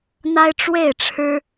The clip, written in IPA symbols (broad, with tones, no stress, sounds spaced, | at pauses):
n̪ a˦ ɪ̯ ʈ͡ʂ w e˥˨ ɪ̯ ʈ͡ʂʰ ɻ̩˦